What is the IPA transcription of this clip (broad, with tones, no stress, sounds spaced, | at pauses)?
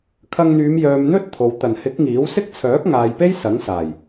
kʰ ɐ˧ ŋ n̪ yː˨˧ m j œː˨ m n̪ ɵ˥ t̚ t̪ʰ o˨ w t̪ ɐ˨˩ n h ɪ˨˥ k̚ ŋ iː˨˥ w s ɪ˥ k̚ t͡sʰ œː˨˥ k̚ ŋ aː˨ j p e˥ j s ɐ˨˥ ŋ s aː˨˩ j